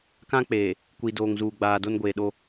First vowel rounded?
no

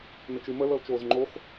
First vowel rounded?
no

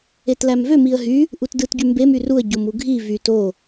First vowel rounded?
no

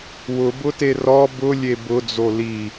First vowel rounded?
yes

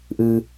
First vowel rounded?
no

